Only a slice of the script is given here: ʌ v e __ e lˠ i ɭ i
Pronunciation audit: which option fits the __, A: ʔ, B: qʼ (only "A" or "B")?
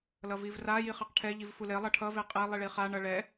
B